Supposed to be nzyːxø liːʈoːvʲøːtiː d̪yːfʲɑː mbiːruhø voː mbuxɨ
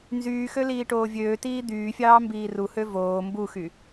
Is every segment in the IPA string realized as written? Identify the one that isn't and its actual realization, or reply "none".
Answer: ɨ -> y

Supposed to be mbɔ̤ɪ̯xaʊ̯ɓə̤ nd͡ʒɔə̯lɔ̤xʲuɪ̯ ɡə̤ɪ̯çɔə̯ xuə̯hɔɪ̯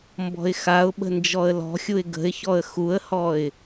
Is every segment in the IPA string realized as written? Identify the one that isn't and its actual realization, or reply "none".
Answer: none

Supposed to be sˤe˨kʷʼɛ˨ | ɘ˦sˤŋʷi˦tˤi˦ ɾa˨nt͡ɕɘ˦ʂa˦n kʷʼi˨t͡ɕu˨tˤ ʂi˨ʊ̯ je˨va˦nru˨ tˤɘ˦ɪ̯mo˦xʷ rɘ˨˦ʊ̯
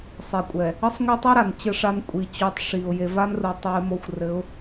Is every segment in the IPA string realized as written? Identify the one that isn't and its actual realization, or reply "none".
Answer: none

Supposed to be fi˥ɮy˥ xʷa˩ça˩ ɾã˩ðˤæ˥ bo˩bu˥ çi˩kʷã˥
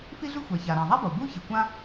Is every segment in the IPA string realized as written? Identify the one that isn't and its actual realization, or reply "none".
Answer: æ˥ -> a˥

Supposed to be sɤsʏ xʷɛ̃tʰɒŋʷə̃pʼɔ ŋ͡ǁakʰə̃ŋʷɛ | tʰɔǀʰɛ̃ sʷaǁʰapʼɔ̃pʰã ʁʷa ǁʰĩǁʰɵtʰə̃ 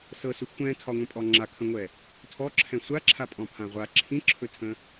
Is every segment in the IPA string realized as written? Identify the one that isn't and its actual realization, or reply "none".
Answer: ǀʰ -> ǁʰ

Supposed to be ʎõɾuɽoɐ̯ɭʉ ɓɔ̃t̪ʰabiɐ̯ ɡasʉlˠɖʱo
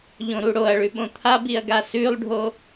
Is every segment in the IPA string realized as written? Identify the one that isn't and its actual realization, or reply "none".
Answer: ɔ̃ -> õ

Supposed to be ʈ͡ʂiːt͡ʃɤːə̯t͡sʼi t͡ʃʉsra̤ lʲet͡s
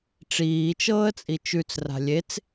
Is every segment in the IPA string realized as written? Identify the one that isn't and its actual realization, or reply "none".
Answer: s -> t͡s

